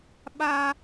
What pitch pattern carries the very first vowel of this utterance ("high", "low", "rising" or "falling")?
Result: high